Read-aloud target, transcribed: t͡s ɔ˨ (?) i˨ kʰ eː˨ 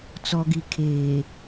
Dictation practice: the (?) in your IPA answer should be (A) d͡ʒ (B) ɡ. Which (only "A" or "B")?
B